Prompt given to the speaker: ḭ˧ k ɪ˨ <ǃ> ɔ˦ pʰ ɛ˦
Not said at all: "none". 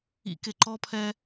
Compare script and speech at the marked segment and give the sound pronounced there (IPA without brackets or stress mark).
ǃ